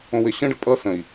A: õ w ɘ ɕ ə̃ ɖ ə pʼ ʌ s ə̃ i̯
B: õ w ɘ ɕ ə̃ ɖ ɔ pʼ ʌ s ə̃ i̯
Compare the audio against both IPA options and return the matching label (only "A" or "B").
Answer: A